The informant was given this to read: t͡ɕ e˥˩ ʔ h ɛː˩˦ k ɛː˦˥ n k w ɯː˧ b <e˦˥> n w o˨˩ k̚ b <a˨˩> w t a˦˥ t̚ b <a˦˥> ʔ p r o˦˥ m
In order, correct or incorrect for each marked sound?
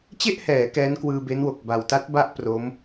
correct, correct, correct

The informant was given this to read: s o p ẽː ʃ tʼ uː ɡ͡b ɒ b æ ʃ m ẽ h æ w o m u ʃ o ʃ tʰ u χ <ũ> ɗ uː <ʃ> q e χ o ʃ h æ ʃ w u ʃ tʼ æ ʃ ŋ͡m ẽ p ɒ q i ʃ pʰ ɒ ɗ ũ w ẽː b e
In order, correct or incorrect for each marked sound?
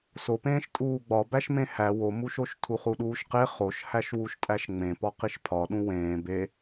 incorrect, correct

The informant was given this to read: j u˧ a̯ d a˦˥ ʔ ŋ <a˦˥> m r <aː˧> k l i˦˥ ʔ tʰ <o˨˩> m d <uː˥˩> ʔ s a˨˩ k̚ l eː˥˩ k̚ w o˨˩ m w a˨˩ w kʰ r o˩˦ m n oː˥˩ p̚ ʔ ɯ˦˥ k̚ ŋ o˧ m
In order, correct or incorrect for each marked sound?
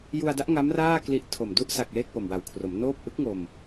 correct, incorrect, correct, incorrect

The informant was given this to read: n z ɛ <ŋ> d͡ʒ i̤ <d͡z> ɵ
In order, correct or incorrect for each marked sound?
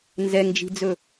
correct, correct

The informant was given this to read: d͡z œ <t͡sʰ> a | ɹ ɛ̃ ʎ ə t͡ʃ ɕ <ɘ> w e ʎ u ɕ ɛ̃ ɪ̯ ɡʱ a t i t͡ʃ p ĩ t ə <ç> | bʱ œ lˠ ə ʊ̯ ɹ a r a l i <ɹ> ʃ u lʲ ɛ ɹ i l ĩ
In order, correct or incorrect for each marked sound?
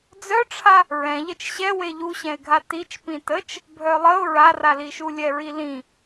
incorrect, incorrect, incorrect, incorrect

